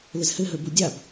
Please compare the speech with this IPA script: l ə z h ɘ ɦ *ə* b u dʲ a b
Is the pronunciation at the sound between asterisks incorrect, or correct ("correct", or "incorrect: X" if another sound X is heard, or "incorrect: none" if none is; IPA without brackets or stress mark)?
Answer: correct